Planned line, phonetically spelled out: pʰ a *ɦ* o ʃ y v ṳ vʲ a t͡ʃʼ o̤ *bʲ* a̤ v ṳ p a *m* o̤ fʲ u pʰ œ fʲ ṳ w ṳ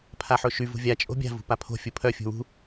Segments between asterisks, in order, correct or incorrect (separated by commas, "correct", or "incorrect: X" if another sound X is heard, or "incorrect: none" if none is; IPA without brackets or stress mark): incorrect: ħ, correct, incorrect: pʰ